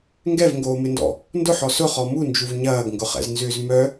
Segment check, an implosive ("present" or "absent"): absent